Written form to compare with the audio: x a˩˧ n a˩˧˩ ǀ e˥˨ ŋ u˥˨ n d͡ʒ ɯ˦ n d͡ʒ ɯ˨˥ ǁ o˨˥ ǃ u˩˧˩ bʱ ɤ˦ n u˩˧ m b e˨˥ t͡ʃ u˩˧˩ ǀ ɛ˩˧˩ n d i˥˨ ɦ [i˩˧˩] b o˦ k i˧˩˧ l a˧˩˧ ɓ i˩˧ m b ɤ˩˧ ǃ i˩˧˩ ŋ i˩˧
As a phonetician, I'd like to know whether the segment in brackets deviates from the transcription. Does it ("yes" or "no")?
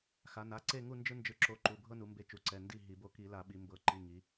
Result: yes